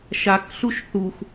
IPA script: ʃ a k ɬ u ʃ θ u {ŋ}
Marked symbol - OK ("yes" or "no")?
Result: no